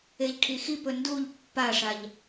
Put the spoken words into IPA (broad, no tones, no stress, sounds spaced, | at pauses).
e ʎ ʈʰ i x i p ɵ n d u ʎ pː a ʂ a ʎ